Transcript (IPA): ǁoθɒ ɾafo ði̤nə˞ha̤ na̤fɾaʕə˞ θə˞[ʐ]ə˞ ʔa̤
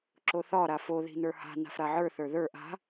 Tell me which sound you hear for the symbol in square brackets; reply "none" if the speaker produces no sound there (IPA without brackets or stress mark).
ð